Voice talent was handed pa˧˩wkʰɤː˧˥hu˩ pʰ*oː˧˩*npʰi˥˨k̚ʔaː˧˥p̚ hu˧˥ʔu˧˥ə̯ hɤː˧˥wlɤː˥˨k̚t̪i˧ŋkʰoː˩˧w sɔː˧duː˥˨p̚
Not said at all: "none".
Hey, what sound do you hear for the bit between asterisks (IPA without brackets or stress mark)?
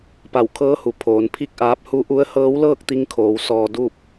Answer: oː˩˧